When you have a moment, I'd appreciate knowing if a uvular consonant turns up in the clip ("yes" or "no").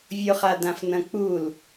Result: yes